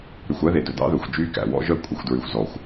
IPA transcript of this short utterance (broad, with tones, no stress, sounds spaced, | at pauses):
ɾ y˨ xʷ æ˦ ð e˨ d ɵ˨ d ɑ̰˦ ð ɵː˨ xʷ d͡ʒ yː˦ k æ̰˨ w ɔ̰˦ ʒ œ˦˨ kʷʼ e˨ xʷ d ɹ y˨ xʷ z ɔ˨ xʷ